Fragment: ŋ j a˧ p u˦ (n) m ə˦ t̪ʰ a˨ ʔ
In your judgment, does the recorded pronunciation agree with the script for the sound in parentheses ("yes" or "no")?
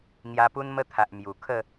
yes